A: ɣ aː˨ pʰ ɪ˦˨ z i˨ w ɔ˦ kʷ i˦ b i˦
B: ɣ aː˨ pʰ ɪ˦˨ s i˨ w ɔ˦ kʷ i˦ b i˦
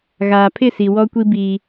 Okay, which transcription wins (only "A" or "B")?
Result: B